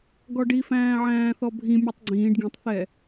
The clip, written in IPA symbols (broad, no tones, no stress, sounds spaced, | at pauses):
ɡ ɔ ɖ i f æ̃ː ʕ æ̃ː θ ɔ bʱ ĩ mʲ u tˤ ɡ͡ǀ ĩː ɖ ɡ ĩ tˤ θ ɛ